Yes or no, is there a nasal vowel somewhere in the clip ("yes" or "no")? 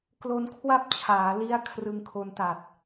no